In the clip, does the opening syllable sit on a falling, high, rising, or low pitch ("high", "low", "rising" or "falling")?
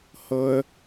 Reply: high